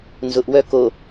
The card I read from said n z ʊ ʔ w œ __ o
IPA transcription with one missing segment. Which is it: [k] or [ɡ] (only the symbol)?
k